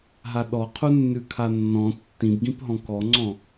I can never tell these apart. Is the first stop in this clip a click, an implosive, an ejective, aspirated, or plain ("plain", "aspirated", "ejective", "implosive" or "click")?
implosive